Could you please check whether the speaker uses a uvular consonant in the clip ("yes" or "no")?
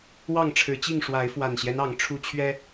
no